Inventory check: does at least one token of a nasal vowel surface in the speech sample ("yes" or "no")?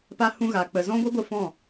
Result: yes